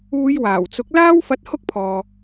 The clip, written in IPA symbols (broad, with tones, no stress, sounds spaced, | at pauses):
uː˨˧ j w aː˨˩ w t͡s ʊ˨˥ k̚ l aː˥ w f ɐ˧ t̚ h ʊ˥ k̚ pʰ ɔː˨